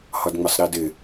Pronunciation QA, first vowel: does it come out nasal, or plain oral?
oral